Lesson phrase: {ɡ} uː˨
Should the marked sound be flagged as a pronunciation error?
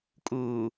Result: yes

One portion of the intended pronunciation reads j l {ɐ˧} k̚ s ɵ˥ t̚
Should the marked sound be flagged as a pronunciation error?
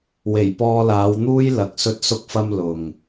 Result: yes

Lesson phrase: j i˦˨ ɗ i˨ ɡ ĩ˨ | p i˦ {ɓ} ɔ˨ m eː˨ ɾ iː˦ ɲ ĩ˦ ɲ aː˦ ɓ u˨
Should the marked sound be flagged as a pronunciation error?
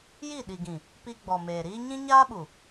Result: yes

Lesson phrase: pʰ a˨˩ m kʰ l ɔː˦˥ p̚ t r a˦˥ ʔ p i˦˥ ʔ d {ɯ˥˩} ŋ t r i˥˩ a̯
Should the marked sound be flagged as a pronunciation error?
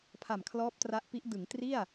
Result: yes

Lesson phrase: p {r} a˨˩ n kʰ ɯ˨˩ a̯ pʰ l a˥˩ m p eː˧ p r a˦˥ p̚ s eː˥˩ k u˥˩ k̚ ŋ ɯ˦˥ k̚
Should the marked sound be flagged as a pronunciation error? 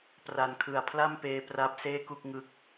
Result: no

